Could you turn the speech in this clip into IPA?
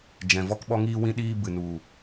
d͡ʒ ɛ̃˨ v ɔ˧ k ɓ ɔ˧ ŋ iː˧ w ĩ˧ ɗ iː˧ b ɨ˨ n u˨

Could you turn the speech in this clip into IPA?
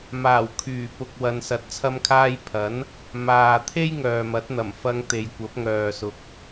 m aː˨˩ w kʰ yː˨˩ p ʊ˨ k̚ w ɐ˨ n s ɐ˨˥ t̚ t͡sʰ ɐ˧ m kʰ aː˧ j pʰ ɐ˨˥ n | m aː˨ t̪ʰ e˥ j ŋ œː˨ m ɐ˨˥ t̚ n̪ ɐ˨˩ m f ɐ˧ ŋ t̪ e˨ j kʷ ɐ˨˥ p̚ ŋ œː˨ s ʊ˨ k̚

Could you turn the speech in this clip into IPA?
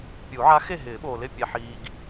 pʲ u˨˩˦ ʕ a˧˥ x e˥˨ ɦ ɪː˨˩˦ ɓ oː˨ l ɪ˥˨ pʲ ɛ˨ ħ iː˨ ɡ

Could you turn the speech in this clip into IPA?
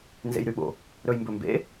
n z ḛ j ɾ y ɓ o̰ | ɾ ɵ j m b ɵ m b ḛ

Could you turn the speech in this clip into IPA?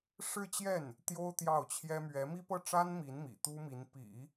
ʂ ɻ̩˥˧ t͡ɕ j ɛ˥˩ n | t̪ j o˥ ʊ̯ t̪ j ɑ˥˩ ʊ̯ t͡ɕʰ j ɛ˥ m ɥ ɛ˧˥ m i˥ p ɤ˥˩ ʈ͡ʂ a˥ n m i˧˥ n m ḭ˨˩ t̪ u˥ m i˧˥ n p ḭ˨˩˦

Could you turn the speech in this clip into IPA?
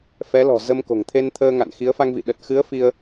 f ɛ˨˦ l ɔ̤˨˩ z ə˧ m k o̤˨˩ ŋ t̪ʰ e˧ n t̪ʰ əː˧ ŋ a̰˧˨ n x i˨˦ ə̯ f a˧ ŋ v ḭ˧˨ ɗ ə˨˩ t̚ x ɨ˨˦ ə̯ f i˧ ə̯

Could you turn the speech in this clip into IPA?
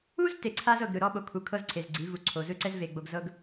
u˦ z t e˨ ǀʰ a˦ z ɤ˨ ɡ ɾ ɯ˨ ɾ ɔ˦ ɓ o˨ kʰ u˨ kʰ ɤ˦ z ǀʰ e˨ z ɡ͡ǀ i˨˦ v u˨ ǀʰ o˨ z ɯ˦ ǀ ɛ˦ z v e˨ ɡ͡b o˨ ɡ z ɤ˦ ɡ

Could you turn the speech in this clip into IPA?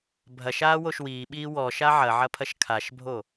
bʱ ɐ ʃ aː w o ʃ w iː ɓ iː w ɔ ʃ a ʕ ɐ ʕ ɐ pʰ ɐ ʃ kʰ a ʃ bʱ o

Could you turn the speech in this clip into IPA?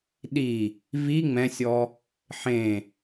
ɗ i | v i ŋ͡m ɛ̃ sʲ ɔ | ħ ẽ

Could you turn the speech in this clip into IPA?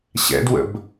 ɕ ɛ̰ d w ə̰ b

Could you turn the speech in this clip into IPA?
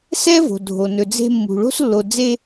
s ɛ˥ v o̤˩ dʱ o˩ n ɵ˩ d͡z e̤˧ mː ṳ˩ ɭ o̤˧ s lː o˩ d͡z e˧

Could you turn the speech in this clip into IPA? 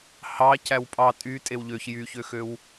h ɑ c æ w pʼ ɑ tʼ y tʼ e w ʎ ø ç j y ç ø x ø w

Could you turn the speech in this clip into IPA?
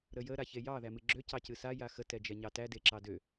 ɾ ə j ə ɾ a ç e j ɑ ð æ m ɨ ɡ͡ǁ ø c ɑ c ɨ s a j a x ə t ɛ d͡ʒ ɛ ɲ ɑ t æ d e ǁ ɑ d ø

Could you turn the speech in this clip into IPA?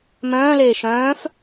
m œ̃ː l eː ʃ œ̃ː f

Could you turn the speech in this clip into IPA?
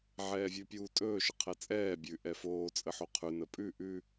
ʕ ɛː vʲ ʉ pʲ uː tʼ ɵː ʃ ə qʰ ɛ t͡sʼ ɛː bʲ ʉ ʔ ɛ f oː t͡sʼ ə ħ o qʰ ʉ n ə pʼ ʉ ʔ ʉ

